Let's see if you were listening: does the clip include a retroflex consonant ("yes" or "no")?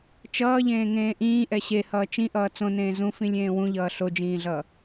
no